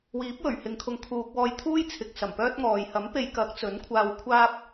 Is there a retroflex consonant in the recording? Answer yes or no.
no